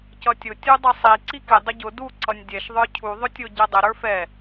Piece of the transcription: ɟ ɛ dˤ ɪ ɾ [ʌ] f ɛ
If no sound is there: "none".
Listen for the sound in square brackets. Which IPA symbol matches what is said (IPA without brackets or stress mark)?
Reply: ə˞